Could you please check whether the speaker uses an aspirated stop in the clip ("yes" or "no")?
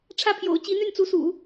yes